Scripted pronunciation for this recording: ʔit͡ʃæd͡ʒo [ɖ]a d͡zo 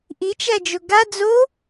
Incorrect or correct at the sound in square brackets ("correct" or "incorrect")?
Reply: incorrect